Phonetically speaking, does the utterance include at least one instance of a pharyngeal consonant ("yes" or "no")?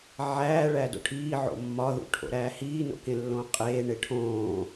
yes